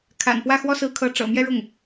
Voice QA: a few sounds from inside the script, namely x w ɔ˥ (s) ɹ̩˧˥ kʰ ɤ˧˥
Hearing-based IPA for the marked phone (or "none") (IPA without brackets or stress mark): s